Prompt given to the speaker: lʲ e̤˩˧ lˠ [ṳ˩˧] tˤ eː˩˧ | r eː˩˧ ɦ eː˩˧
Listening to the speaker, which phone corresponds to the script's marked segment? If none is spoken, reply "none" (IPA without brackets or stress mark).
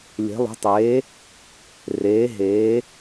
ṳ˩˧